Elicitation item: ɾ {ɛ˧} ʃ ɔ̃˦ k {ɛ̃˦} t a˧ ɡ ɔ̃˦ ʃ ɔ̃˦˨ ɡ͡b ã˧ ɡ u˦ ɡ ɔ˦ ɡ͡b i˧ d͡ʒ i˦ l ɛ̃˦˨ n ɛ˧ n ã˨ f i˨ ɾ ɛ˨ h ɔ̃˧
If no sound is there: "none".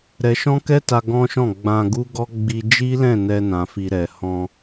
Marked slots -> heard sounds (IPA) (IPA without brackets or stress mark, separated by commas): ɛ˧, ɛ˦